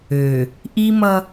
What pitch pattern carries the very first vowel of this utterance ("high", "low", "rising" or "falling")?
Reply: low